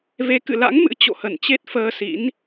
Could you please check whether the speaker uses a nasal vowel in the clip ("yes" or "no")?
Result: no